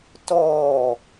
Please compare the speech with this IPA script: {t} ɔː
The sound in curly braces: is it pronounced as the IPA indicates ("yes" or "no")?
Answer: yes